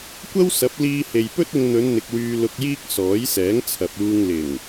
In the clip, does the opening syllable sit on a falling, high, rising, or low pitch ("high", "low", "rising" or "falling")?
high